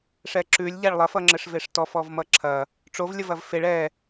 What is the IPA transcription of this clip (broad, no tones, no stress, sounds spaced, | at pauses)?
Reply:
ʂ ɛ ǁ ʉ lʲ ʎ a ɭ lˠ ɐ f ʌ ŋ͡ǁ ɘ ʂ v e ʂ t ɔ f ɔ v m ʌ ǁʰ ɐ | ʈ͡ʂ o v lʲ ə v ɐ v f e ɭ ɛ